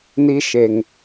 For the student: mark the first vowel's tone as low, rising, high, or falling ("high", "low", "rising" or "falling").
high